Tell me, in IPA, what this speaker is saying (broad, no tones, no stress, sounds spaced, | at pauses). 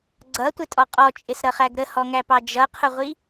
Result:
ɡ͡ǀ ʌ tʷ ɪ tʼ ɔ qʼ ɔ t͡ʃʼ ɪ s ɾ ʌ χ æ ɡ ɾ ə h ɔ ŋ æ p ɑ d͡ʒ ʌ qʰ ʊ ʁʷ i